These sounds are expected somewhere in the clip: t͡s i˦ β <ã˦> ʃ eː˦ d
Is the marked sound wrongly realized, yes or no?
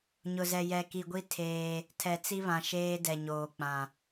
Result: yes